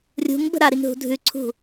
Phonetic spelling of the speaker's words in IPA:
rʲ ṳ ŋ b ə̤ ɾ a ɾ i ŋ ɦ ṳ dʱ ʉ ǀʰ ṳ

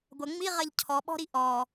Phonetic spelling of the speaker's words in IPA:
ɡʷ ɐ ŋ͡m i ʁ ɐ ʎ cʰ ɔ ɓ ɔ̤ ɾ i ʔ ɔ

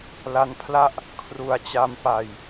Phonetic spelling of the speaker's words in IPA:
l a˦˥ n pʰ l a˥˩ ʔ | kʰ r u˨˩ a̯ t͡ɕ a˧ m p a˨˩ j

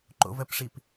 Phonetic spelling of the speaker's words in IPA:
ǃ o̰ v ɜ p ʂ i p

